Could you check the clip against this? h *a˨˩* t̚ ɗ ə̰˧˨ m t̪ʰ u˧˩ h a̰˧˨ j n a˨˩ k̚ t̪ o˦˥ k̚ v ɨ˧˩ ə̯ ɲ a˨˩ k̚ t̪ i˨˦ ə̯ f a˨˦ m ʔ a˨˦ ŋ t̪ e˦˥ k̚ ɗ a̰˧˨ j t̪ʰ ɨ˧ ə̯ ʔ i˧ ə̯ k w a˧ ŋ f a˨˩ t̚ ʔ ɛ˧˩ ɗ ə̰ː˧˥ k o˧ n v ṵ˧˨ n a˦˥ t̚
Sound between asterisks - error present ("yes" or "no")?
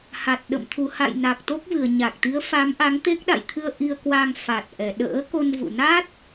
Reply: no